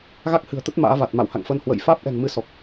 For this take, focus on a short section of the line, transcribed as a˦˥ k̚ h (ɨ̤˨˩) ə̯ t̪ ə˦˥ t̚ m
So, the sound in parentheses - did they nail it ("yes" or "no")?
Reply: yes